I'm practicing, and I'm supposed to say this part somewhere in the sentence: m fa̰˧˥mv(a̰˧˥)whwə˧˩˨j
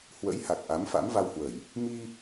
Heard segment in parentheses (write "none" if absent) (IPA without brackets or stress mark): a˧